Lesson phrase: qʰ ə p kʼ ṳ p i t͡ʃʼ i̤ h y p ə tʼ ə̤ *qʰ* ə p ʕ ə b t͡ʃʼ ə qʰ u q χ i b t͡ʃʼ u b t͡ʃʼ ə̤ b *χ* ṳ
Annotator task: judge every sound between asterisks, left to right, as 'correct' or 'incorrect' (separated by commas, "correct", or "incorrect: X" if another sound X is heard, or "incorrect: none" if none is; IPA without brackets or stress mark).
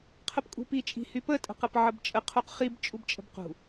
incorrect: q, incorrect: q